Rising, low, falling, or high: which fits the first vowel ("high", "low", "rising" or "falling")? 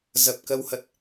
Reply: low